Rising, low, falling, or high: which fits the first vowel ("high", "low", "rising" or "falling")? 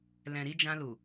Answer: low